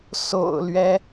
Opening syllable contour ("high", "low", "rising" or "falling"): low